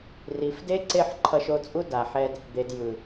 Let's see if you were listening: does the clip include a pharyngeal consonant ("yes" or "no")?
yes